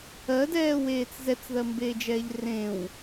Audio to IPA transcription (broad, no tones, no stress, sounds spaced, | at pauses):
ɜ d ɛː w eː t͡s z ɛ t͡s ð ɜ m b eː d͡ʒ ɛː ʎ r ẽ w